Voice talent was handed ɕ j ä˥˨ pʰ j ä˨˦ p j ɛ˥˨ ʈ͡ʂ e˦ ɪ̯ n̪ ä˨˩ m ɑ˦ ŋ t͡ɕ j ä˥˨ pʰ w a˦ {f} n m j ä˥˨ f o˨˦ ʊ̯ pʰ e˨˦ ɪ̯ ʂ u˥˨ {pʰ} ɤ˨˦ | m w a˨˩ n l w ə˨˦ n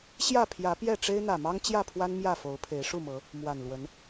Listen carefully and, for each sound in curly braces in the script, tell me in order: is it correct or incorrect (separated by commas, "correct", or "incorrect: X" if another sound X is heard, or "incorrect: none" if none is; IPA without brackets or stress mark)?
incorrect: none, incorrect: m